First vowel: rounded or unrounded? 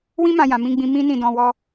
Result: unrounded